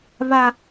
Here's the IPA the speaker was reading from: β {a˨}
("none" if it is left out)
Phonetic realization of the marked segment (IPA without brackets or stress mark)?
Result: a˦